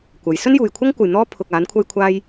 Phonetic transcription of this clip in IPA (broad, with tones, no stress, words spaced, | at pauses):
kʷɐ˨˥j sɵ˥njuː˨jkʷʰɐ˥ŋkʷɐ˨j n̪ɔː˥ pʰʊ˧k̚ aː˨˥n kʷʰɐ˥jkʷʰaː˥j